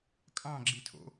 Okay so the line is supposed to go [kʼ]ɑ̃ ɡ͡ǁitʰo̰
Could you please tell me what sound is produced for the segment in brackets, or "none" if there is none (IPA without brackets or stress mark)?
kʼ